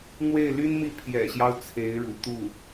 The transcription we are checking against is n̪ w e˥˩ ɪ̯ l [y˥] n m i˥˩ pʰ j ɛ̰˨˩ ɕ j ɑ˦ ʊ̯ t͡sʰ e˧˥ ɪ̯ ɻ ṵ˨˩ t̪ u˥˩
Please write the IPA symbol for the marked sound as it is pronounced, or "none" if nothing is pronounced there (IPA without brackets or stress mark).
y˥